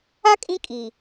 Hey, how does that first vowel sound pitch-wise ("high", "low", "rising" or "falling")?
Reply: high